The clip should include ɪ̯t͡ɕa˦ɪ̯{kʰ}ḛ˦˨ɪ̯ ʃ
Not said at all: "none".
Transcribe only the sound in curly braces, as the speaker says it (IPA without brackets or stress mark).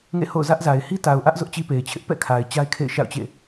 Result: kʰ